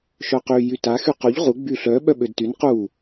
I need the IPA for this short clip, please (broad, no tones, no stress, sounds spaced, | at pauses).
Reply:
ʃ œ q y j y t a x y q o ʎ ʁ u ɡ͡b y ɬ œ ɓ œ ɓ ø d t y n q u